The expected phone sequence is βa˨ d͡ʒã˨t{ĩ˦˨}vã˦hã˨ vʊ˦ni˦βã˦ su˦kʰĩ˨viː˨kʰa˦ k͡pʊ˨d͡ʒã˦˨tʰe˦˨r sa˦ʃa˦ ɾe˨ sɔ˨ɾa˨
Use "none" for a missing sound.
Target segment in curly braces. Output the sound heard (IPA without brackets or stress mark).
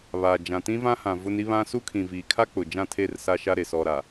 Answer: ĩ˦